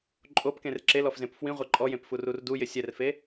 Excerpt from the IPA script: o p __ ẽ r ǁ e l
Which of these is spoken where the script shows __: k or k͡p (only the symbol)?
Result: k